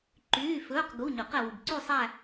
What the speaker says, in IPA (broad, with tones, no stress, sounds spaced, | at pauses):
ǃ yː˧˥˧ f ɵː˧˥˧ q ɡ u˧˥˧ ɲ ɵ˨˩˦ q ɛ˨ w u˨ b ǀ y˥˧ sˤ æ˥˧